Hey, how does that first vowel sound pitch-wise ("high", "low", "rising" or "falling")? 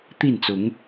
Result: falling